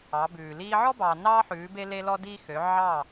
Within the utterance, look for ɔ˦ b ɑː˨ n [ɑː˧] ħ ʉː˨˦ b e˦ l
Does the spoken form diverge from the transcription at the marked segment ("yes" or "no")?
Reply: yes